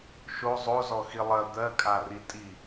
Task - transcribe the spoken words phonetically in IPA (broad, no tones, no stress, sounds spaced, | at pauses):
ʃ o zˤ o z ɔ x i lˠ ɜ d̪ ɜ kʼ a r i tʼ i